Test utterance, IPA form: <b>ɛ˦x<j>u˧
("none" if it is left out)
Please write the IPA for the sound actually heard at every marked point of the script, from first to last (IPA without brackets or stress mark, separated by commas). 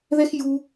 ð, j